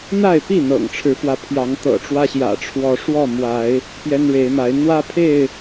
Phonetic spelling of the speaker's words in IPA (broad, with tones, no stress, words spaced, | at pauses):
n̪a˥˨ɪ̯pi˥˨ n̪ɤ̰˨˩ŋʈ͡ʂʰɻ̩˨˦fwä˧ pʰjɑ˨˦ŋt̪ɤ̰˨˩ʈ͡ʂwä˦ɕjä̰˨˩ ʈ͡ʂʰwɔ˨˦ʂwɔ˥˨ mwa˨˦ɪ̯ | pjɛ˦nɻe˨˦ɪ̯ma˨˦ɪ̯ n̪wä˦pʰe˥˨ɪ̯